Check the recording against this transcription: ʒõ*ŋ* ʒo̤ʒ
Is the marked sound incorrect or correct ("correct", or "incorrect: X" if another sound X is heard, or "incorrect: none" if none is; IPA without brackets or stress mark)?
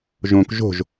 incorrect: k